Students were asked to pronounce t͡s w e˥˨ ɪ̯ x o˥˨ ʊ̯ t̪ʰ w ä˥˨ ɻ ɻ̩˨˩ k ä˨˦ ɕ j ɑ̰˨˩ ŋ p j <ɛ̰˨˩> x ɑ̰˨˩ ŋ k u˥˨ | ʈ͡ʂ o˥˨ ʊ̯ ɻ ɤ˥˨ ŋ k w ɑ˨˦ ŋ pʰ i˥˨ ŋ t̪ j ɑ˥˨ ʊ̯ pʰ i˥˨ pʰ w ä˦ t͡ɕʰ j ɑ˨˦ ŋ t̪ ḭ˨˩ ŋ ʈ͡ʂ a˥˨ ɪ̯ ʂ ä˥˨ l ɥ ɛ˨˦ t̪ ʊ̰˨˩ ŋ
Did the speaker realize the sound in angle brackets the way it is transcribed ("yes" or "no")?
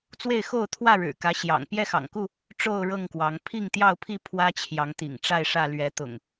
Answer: no